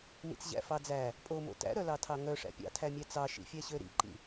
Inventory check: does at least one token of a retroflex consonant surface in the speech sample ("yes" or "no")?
yes